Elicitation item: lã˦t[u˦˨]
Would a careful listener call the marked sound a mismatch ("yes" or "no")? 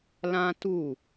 no